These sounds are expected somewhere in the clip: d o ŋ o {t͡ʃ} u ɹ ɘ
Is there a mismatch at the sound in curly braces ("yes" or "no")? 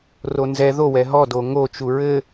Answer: no